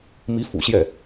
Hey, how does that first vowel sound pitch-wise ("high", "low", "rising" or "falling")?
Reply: rising